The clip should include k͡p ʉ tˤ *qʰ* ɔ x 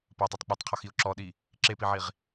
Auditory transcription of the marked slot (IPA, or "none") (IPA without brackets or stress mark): qʰ